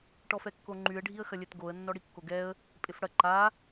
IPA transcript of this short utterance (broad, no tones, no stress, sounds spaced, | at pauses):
ʈ ɔ f ɛ kː o ŋ͡ǃ y ə̯ ɖʱ i ə̯ x ɐ lʲ ɛ t ɡ o ə̯ nː ɔ ɽ i kː o ɡ ɛ ə̯ | pʼ ɪ f ɽ ɐ ǃ a